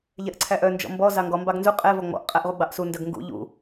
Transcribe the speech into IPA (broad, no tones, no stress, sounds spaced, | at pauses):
ʎ ɛ ʔ ǀʰ æ ʔ œ n d͡ʒ ɔ̰ m b ɔ z ɑ ŋ ɡ ɔ m b ɑ ɡ n z u qʼ ɛ v ɔ ŋ͡m ɔ̰ ʔ qʼ æ ʔ ʁ u ɡ͡b ɑ ʔ s u n d œ ɡ ŋ ɡ ṵ ʎ ṵ